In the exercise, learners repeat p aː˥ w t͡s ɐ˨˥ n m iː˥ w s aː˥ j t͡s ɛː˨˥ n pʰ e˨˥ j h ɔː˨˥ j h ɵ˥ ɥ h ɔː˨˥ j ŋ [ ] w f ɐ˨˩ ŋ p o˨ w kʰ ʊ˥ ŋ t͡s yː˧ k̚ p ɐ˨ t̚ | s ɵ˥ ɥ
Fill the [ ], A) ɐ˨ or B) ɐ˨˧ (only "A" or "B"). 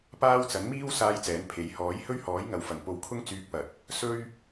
A